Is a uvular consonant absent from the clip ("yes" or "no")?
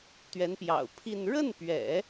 yes